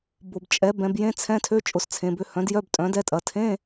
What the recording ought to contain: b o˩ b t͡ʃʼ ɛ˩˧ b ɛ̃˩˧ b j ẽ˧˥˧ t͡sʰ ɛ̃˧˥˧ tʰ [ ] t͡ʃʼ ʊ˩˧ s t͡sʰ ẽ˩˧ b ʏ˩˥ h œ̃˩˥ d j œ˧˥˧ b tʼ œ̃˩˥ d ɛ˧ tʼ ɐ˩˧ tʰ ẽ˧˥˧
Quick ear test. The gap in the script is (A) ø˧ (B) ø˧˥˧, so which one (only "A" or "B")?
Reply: B